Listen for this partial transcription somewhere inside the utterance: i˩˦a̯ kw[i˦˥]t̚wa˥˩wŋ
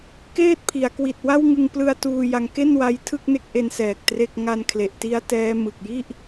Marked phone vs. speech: incorrect: i˨˩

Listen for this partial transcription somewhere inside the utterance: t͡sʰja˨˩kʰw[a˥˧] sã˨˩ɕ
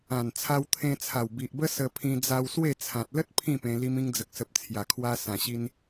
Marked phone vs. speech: incorrect: a˧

